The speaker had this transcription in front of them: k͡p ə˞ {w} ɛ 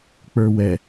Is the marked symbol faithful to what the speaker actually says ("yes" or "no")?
yes